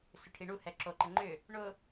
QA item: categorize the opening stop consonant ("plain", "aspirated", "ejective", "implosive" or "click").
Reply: aspirated